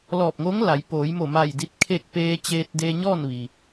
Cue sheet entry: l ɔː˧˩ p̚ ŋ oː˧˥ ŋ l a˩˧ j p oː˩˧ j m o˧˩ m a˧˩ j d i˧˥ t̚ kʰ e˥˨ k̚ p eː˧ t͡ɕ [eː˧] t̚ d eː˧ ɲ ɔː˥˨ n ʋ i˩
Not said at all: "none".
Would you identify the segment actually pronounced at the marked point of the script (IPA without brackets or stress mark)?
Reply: eː˧